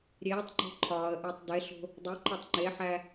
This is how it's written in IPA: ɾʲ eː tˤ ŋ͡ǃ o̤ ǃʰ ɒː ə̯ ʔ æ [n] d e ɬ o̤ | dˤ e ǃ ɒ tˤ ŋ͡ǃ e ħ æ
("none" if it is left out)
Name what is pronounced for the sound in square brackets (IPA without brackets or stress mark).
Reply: tˤ